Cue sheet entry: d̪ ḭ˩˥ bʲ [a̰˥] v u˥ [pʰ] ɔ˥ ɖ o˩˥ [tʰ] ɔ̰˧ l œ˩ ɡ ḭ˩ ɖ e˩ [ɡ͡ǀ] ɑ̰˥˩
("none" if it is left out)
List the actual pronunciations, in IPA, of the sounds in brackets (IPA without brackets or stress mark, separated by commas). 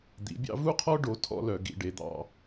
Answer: ɑ̰˥, qʰ, tʰ, d̪